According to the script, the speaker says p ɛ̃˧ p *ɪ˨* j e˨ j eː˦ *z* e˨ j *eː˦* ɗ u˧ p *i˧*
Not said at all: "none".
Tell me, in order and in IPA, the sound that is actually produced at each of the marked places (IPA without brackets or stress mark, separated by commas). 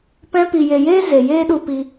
i˨, z, eː˦, i˧